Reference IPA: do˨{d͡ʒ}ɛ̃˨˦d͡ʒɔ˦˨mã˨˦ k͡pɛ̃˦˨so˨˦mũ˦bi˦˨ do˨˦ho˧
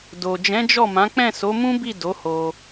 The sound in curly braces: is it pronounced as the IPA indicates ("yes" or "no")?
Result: yes